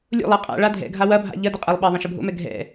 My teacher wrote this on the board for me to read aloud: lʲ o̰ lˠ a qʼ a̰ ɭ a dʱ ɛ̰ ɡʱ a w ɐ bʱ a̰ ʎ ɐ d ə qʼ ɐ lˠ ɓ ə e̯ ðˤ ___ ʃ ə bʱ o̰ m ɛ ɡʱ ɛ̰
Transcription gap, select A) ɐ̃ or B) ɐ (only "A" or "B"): A